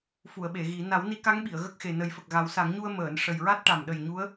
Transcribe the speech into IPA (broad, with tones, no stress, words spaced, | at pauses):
fu˨˩˨ə̯ɓe˨˩˨ ɣi˨˩˦ na˨˩˦wni˧˥ka˧˥ŋɓi˨˩˨ə̯ ɣə˦˥k̚xe˨˩ nə˨˩˦jfə˨˩k̚ɣa˨˩˦w sa˨˩˦ŋɲu˧ə̯ məː˨˩˨n ʂə˨˩jɹa˦˥t̚ʈa˨˩m ɗə˨˩j ɲu˧˥ə̯